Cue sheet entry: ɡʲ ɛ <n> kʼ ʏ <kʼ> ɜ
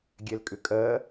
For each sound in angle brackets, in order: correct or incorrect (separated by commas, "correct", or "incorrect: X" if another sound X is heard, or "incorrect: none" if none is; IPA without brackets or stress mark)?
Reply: incorrect: l, correct